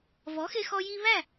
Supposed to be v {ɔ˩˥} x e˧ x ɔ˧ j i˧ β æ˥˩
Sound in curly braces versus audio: correct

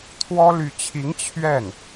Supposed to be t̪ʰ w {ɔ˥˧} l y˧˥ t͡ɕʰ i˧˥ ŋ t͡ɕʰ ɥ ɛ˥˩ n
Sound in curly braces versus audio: incorrect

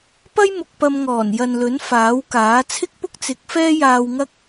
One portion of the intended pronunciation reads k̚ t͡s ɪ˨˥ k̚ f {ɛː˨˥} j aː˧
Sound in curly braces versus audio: incorrect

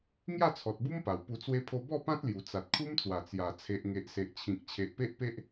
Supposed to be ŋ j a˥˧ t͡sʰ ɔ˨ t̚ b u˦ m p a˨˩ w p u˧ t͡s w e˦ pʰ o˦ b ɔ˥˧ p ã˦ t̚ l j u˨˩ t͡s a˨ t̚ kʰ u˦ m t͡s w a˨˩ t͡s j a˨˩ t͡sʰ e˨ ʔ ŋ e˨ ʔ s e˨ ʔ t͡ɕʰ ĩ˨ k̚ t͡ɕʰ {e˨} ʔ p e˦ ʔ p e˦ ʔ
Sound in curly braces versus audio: correct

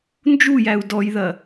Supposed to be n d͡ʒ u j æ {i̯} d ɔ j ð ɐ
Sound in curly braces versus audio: incorrect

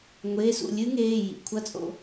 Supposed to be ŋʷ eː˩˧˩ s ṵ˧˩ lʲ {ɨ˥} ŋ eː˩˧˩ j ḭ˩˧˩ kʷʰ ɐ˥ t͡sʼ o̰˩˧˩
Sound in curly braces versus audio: correct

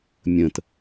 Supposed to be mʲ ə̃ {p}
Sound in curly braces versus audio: incorrect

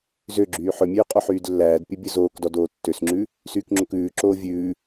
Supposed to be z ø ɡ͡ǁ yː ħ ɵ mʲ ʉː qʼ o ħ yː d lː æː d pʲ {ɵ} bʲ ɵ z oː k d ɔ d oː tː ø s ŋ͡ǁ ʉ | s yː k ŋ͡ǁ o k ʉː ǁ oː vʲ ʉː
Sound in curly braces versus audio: correct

